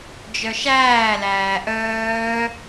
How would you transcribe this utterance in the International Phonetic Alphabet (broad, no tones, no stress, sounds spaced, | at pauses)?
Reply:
d͡ʒ œ ʃ æː l æː ʔ œː